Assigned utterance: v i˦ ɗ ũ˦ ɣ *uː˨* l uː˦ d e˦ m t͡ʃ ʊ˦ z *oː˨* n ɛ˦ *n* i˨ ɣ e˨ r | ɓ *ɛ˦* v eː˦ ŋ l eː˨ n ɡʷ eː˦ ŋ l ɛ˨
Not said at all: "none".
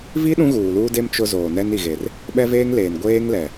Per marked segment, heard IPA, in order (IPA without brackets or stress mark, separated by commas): uː˨, oː˨, n, ɛ˦